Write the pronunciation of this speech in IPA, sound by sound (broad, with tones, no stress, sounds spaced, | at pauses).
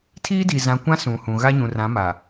tʰ iː˦ d i˨ z ã˨ kʷ ã˦ s ũ˨ h ũ˨ ɣ a˦ ɲ ũ˨ r ã˨˦ m a˨